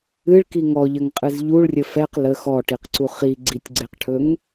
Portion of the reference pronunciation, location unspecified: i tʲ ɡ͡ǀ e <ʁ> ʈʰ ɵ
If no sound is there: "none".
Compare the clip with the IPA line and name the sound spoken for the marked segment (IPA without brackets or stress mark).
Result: q